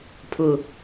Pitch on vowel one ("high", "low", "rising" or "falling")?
low